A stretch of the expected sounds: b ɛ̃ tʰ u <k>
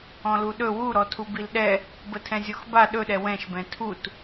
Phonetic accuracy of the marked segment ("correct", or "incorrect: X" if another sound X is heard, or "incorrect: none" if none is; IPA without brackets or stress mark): incorrect: t